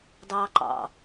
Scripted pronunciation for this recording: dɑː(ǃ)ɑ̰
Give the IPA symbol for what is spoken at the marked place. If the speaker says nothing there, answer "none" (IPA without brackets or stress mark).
ǃ